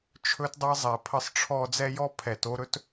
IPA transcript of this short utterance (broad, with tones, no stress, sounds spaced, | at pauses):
t͡ʃʰ ɵ˦ t dˤ ɛ˦ zˤ ɛ˨ pʰ ə˦ sˤ ʈ͡ʂʰ ɔ˦ d͡z ɛ˦ j ɔ˦ pʰ ɛ˨ t o˦ ɾ ɵ˦ t